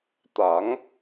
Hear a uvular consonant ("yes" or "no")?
no